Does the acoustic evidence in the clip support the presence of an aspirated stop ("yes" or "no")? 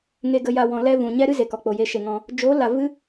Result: no